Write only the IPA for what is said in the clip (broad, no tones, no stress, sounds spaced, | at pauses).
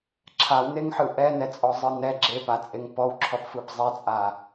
ǁʰ a w n e ŋ ħ ɯ ʔ ɛ n ɛ t͡sʼ ɔ zˤ ɯ n ɛ ɡ͡ǁ e p a t͡sʼ e ŋ p ɔ w ǁʰ ɔ p f ɯ p zˤ ɛ t͡sʼ a